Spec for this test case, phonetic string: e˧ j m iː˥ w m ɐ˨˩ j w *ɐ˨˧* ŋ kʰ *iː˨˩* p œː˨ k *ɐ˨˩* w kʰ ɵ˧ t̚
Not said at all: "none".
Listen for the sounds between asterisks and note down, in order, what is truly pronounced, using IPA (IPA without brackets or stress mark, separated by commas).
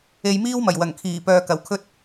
ɐ˨˩, iː˨˩, ɐ˨˩